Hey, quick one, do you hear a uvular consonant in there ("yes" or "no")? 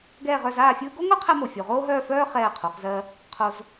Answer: yes